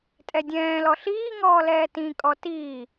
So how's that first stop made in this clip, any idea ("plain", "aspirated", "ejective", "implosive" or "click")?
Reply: ejective